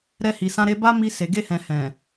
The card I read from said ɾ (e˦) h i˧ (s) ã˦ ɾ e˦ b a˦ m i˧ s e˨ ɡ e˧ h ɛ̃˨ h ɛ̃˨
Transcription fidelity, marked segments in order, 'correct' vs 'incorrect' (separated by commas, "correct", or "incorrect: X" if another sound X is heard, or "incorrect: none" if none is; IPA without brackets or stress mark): incorrect: ɛ˦, correct